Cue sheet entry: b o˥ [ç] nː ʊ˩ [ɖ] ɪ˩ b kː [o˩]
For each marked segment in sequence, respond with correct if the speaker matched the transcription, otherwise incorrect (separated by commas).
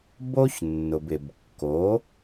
correct, incorrect, incorrect